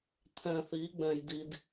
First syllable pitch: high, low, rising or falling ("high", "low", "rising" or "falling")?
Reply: low